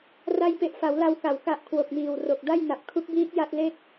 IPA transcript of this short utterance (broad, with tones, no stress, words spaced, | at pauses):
ra˧jpe˨˩ʔfa˩˦w la˧wka˩˦w ka˨˩ʔ kʰwo˨˩k̚miː˨˩wro˨˩k̚ da˥˩jna˨˩p̚kʰu˦˥k̚biː˦˥k̚ ja˥˩t̚ le˥˩k̚